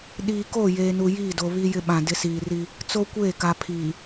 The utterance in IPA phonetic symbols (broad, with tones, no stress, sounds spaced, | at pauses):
ɗ iː˨ k o˦˨ j eː˨ n u˨ j iː˦˨ d o˨ β i˦ j ɪ˦ ɓ ã˨ d ɪ˦ s iː˨ r i˦ | t͡s o˦ kʷ eː˦˨ k a˨ pʰ iː˨